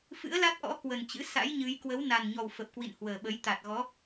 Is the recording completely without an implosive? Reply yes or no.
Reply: no